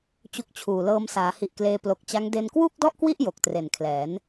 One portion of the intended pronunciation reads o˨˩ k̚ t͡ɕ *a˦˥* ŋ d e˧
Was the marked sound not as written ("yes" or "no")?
no